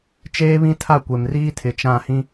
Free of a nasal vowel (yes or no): no